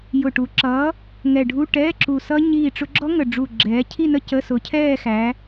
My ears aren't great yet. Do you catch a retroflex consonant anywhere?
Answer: yes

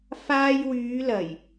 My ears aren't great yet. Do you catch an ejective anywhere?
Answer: no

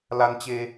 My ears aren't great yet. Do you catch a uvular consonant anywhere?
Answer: no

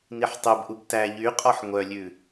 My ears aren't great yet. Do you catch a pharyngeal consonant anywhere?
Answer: yes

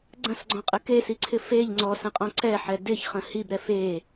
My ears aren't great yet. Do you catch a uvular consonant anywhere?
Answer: yes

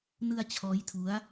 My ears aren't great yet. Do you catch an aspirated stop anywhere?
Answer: yes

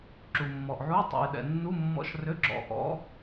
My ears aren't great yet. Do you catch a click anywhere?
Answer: yes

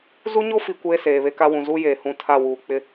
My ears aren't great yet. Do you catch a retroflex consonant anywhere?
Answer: no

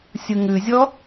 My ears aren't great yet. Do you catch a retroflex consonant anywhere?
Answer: no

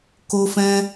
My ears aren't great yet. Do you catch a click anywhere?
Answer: no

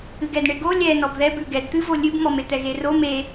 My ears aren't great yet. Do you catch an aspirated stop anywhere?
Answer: no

